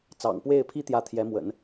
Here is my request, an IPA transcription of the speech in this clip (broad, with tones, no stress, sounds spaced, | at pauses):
t͡s ɑ̰˨˩ ŋ p w e˥˩ ɪ̯ pʰ i˥ t̪ j ä˧˥ t̪ʰ j ɛ˧˥ m w ə̰˨˩˦ n